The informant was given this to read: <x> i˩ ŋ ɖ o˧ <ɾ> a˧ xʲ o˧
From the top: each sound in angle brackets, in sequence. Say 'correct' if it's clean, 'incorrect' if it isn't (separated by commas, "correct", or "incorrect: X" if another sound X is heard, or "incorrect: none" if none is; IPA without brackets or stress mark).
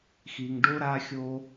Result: correct, correct